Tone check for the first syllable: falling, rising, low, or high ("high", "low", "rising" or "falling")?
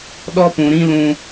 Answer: high